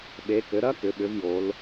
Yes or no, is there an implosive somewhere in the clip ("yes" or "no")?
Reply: yes